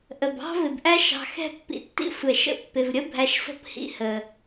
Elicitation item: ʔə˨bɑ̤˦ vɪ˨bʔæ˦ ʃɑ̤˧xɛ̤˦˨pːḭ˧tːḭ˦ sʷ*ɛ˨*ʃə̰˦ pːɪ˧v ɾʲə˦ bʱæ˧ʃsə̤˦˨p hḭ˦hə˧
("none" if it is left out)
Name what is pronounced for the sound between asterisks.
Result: ɛ˨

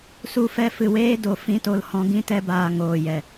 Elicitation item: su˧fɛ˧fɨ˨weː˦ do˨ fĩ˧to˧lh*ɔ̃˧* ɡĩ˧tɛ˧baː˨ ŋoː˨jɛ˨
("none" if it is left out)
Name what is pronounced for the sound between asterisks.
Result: ɔ̃˧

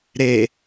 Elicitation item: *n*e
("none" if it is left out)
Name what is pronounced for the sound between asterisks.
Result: ɾ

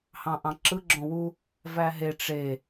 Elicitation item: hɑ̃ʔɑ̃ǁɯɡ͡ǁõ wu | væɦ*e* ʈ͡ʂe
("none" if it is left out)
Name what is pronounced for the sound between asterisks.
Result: e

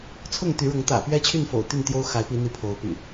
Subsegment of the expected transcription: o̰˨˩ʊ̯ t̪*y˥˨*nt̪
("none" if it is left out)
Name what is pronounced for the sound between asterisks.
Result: y˥˨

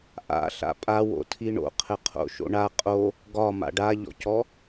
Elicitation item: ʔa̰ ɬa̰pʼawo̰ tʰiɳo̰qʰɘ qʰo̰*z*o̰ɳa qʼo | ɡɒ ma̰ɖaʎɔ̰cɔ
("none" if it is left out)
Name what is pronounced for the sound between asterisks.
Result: ʃ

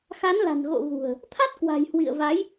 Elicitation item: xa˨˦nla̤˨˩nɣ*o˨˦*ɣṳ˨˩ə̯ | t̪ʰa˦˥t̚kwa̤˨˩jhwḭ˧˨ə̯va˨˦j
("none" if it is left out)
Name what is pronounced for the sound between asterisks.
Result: o̰˧˨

